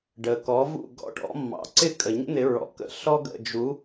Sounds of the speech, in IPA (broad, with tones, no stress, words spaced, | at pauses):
ɖə˩ kɔ˩˥ vṵ˥˩ɡɔ̰˥˩ʈɔ̰˩˥ mːɑ̰˩˥ ǀɪ˥˩kʼə˩ɲə̰˥ n̪ɪ˩˥ɹɔ̰˩˥kə̰˥˩ ɬɔ˥ɡə̰˥˩ d͡ʒu˩˥